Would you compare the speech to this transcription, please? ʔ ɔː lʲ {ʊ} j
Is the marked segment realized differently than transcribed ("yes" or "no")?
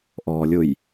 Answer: no